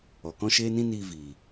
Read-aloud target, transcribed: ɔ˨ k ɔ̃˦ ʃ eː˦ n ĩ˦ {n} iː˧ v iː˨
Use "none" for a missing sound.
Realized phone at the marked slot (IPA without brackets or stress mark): n